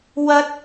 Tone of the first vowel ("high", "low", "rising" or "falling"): high